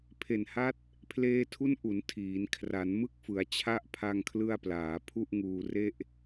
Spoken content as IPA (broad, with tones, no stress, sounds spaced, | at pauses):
pʰ e˨˩ n h a˦˥ t̚ | pʰ l eː˧ tʰ u˦˥ n ʔ u˩˦ n tʰ iː˩˦ n kʰ r a˩˦ n m ɯ˦˥ k̚ f ɯ˩˦ a̯ t͡ɕʰ a˦˥ ʔ pʰ a˧ ŋ kʰ l ɯ˧ a̯ p l aː˩˦ pʰ u˥˩ ʔ ŋ uː˧ r e˥˩ ʔ